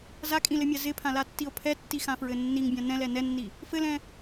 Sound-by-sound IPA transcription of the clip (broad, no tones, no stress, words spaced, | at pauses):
zakʼĩlɘmʲa zɪpʰãlatːio̯ pʰɛtːixãfɹɘ nːiŋbʲã nɛ̃lɛ nɛnːi | fɘlɛ̃